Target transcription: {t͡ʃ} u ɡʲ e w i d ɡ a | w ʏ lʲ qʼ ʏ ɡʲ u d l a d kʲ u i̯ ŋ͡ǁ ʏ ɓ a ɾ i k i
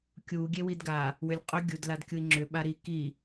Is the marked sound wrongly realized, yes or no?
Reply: yes